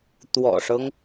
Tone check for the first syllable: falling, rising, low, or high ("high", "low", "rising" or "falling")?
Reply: low